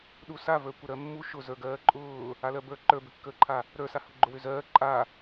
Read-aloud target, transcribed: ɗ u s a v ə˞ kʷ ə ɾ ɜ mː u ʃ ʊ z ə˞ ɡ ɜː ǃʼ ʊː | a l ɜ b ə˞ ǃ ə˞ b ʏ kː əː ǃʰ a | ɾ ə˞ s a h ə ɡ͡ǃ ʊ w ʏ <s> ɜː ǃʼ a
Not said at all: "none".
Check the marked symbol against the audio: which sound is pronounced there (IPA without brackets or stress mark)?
z